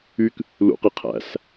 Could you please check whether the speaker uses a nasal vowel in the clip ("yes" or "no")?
no